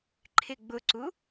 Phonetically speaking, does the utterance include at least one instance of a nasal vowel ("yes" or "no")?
no